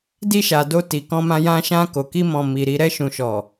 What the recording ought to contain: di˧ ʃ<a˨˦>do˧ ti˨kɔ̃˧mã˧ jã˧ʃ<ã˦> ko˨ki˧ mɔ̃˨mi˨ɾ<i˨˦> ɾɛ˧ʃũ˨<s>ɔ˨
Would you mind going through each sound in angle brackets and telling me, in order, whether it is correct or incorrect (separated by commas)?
incorrect, incorrect, incorrect, incorrect